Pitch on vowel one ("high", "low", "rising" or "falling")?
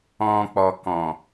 low